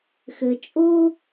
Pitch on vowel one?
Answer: low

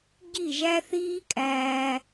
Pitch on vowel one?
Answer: falling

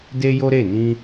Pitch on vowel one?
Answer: high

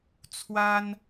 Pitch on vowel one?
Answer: high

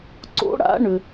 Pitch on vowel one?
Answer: rising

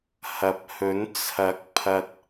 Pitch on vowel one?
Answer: rising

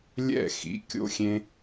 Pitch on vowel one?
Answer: falling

